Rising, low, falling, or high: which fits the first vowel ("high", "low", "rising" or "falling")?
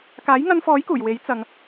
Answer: rising